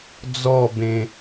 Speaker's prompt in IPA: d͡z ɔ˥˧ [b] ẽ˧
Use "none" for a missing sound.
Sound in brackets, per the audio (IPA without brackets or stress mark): b